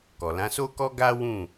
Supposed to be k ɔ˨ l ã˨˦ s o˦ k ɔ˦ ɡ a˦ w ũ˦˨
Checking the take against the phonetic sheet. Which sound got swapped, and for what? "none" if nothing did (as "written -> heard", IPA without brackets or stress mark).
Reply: none